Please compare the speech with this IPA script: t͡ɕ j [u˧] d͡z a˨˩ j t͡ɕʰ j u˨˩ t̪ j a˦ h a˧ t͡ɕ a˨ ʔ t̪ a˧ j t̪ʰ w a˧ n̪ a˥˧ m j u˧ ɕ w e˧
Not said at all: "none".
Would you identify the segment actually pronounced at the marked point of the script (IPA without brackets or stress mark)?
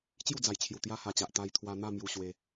u˥˧